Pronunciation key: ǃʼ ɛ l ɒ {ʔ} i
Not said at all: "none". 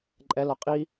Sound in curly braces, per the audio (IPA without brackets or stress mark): qʼ